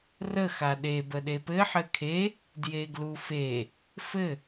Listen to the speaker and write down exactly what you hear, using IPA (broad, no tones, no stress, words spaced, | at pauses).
rə xaɗe bəɗepɘ ħɘkʰe | djeɡlufe | fɘ